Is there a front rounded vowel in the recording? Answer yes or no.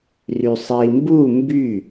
yes